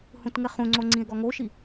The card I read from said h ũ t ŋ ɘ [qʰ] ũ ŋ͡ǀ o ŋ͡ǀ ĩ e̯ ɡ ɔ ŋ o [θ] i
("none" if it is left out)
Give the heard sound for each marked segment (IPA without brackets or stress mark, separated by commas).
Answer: χ, ʃ